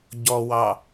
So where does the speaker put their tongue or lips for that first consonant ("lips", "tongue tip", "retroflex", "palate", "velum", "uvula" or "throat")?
palate